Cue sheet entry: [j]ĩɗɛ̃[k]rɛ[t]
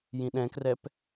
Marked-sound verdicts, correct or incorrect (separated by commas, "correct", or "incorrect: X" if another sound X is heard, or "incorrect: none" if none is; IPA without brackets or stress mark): correct, correct, incorrect: p